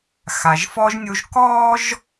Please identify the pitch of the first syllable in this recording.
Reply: low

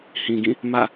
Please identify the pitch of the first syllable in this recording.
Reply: low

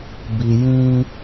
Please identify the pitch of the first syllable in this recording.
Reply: low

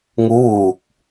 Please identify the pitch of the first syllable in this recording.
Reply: rising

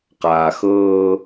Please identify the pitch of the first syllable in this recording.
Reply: low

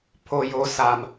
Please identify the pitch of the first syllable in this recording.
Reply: low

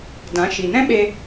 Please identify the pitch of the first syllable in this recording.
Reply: rising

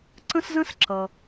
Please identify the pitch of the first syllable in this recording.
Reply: high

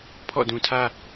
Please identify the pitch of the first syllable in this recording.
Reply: falling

